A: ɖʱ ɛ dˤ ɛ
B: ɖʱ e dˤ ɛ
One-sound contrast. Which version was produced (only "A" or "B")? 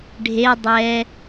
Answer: B